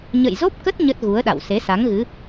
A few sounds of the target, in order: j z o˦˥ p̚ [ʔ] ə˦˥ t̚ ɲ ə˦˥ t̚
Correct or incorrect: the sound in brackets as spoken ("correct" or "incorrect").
incorrect